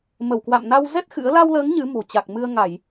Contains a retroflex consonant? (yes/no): no